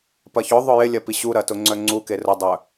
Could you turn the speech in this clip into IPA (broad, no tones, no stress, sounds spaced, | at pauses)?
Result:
p ɐ ç ʊ ðˤ ʊ j ɪ lʲ ɐ p i ɕ u ɾ ɐ t ʊ ŋ͡ǀ œ ŋ͡ǀ u k e r ʊ dˤ œ